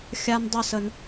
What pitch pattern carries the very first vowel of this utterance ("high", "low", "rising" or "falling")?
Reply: high